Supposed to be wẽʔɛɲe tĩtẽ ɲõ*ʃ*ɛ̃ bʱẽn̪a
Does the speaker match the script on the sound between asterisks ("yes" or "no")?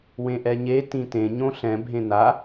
no